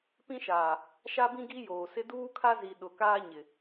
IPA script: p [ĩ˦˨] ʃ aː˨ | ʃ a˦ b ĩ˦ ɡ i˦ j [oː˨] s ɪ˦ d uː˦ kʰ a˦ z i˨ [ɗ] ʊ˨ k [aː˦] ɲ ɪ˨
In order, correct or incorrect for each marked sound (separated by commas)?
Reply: incorrect, correct, correct, correct